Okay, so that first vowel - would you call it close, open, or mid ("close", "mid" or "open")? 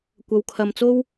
open